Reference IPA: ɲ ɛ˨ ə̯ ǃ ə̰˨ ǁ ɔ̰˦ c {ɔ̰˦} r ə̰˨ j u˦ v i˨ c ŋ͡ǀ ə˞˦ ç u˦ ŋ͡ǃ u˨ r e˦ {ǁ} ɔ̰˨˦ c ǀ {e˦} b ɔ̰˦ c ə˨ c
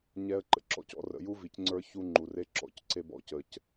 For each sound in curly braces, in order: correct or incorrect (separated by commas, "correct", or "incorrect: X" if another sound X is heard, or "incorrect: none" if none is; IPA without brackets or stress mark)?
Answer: correct, correct, correct